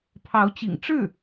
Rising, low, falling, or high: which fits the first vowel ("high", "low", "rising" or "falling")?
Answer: rising